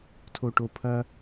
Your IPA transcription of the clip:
tʰoʈopʰɐ

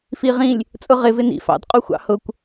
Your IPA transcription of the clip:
fiʁĩlʲ | t͡sʼʊʁɪ vɪnḭf ɑ̰dqʼuxʷɑ̰ hʊkʷ

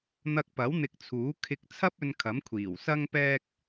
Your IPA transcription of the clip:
n̪ɐ˧k̚pɐ˨˥w n̪ɪ˧k̚ t͡sʰuː˨˥kʰɪ˧k̚t͡sʰɐ˥p̚ɵ˧n kʰɐ˨˥mkʷʰiː˨˩w sɐ˥ŋpɛː˥k̚

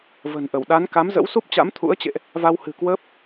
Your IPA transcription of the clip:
və̤˨˩nʔə˧˩w ɗa˨˦n ka˨˦mzə̰˧˥wsu˦˥p̚ t͡ɕa̰˧˥mt̪ʰṵ˧˥ə̯t͡ɕḛ˧˨ʔ | va˧whɨ̤˨˩kwəː˦˥p̚

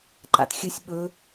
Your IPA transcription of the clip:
ǃa̰txʲɨsʲ ɓɵ

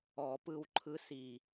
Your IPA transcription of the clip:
ɔ˨˩˦pɯ˦˨w ǃʰɯ˧˥si˨˩

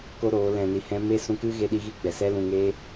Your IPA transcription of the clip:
ko˦ ɾoː˨˦lɛ̃˧ni˧hɛ̃˦ me˦sũ˧kɨ˦ ɣe˦ɗi˦ɣi˦ɡ͡bɛ˨ sɛ˦lũ˧ŋe˦

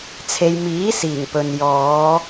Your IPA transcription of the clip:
t͡sʰe˨jmiː˨˥siː˨˩ŋ pɵ˨n jɔː˨˧

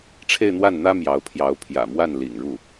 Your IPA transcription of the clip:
ʈ͡ʂʰe˥˧ɪ̯n̪wa˥˩nn̪ä˥ mjɑ˧˥ʊ̯pʰjɑ˧˥ʊ̯ pʰjä̰˨˩mwa˥˩nlḭ˨˩ŋɻu˥˩

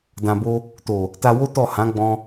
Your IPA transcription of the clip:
dã˨bo˧ | to˨ | ta˧wo˦ tɔ˦˨ hã˨˦ɡ͡bɔ̃˧

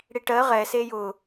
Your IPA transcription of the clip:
ɽiʈɜ ʁɛ sejʊ

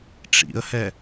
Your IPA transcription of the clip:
ʈ͡ʂḭə̯hɛ

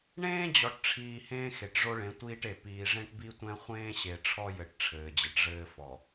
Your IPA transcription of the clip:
ɳẽː˦d͡ʑɔ˨ʈʈ͡ʂʰiː˨ hẽː˦xe˨ʈʐo˦ɭẽ˨˦ tʷiː˦ʈe˨ piː˨ ʐẽ˦ʈbi˦tʷɛ̃˦ χʷẽː˦ɕe˨ ʈ͡ʂʰɔ˦jɘ˨ʈ ʈ͡ʂʰɘː˨d͡ʑɘ˨ʈʐɘː˦fɔ˨

